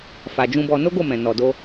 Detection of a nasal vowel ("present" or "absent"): present